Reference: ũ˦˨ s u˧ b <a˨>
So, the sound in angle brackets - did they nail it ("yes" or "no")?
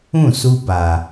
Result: yes